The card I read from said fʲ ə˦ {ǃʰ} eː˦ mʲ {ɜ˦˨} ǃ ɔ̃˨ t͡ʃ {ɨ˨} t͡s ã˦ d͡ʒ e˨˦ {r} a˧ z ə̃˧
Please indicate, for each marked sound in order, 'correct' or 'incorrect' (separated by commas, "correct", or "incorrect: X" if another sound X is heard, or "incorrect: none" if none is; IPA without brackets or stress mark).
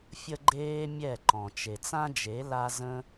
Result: incorrect: ɡ͡ǃ, incorrect: ɛ˦˨, incorrect: e˨, incorrect: l